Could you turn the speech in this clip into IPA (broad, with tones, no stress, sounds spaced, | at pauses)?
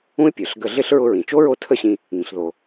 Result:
ũ˥ ɪ̯ pʲ ə˞˩ ɬ ɡ ə˧ ɮ ɪ˥ ɬ ɹ ʊ˧ ɹ ĩ˩ t͡ʃ o˥ ɹ o˥ tʰ ə˥ ɕ ĩ˧ | ŋ ĩ˩ ɬ ð o˩